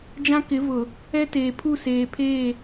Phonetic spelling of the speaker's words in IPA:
d͡ʒ ã˦ k ɪ˨˦ v ʊ˨ | ɛ˦ t eː˨ pʰ u˦˨ s eː˨ pʰ eː˦˨

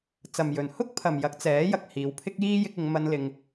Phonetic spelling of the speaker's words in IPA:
t͡s ɐ˨ m j ɵ˨ n h ʊ˥ k̚ pʰ ɐ˨ m j ɐ˨˥ k̚ t͡s ɛː˨˥ j ɐ˨ k̚ h iː˨˧ w pʰ ɪ˥ k̚ j iː˥ j ɪ˧ k̚ ɪ˨˧ ŋ m ɐ˧ n l ɪ˧ ŋ

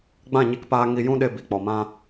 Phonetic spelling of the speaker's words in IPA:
ɡ͡b ã˦˨ ɲ i˧ k p aː˧ ŋ i˧ j ũ˦ ɗ e˧ b i˨ k͡p ɔ˨ m ã˧

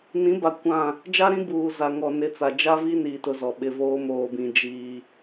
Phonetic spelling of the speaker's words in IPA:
n ĩ˨˦ b a˨ kʷ ã˦˨ | d͡ʒ a˦ ɾ ĩ˦ b uː˨ z a˨ ŋ ɔ˨ n ɪ˨˦ t͡s a˨ d͡ʒ a˦ v i˦ n i˨ t ʊ˦ z ɔ˨ ɓ ɪ˨ v oː˦ m oː˨ b ĩ˨ d͡ʒ iː˦

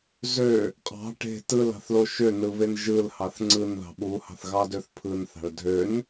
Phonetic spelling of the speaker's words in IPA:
z ø | qʼ ɑ̤ ʈ e̤ t ɯ l ɑ̤ θ l o ʃ ø n ɯ β e n ʒ ɯ l h ɑ θ ŋ͡ǀ ɯ n ð ɑ̤ ɓ u h ɑ̤ θ ɣ ɑ d ø θ pʰ ɯ n θ ɑ̤ ɭ dʱ ø n

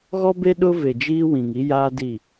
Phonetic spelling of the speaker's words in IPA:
ɣ ɔ˦ b e˦ ɗ ʊ˦ v e˨ d͡ʒ iː˦ w ĩ˨ ŋ i˦ j aː˦ d i˦˨

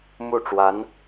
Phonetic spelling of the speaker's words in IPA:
m u˥˩ ʈ͡ʂ w a˧˥ n

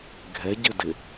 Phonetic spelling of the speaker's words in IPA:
ɡʱ ɛ ɟ ɘ d ɪ

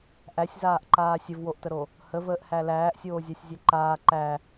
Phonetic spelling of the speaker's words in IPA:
ʔ æ sʲ z aː ʔ ǃ aː sʲ ə v w o ʔ t ə ɾ o | h ə v əː ʔ h æ l æː ʔ sʲ oː zʲ a sʲ zʲ ɛ ǃ aː ǃ æ

